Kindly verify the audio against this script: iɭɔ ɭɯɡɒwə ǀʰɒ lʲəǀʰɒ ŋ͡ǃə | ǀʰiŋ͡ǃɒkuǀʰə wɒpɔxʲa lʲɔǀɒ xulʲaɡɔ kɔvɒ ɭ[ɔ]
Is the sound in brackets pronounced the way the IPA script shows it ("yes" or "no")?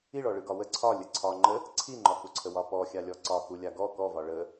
no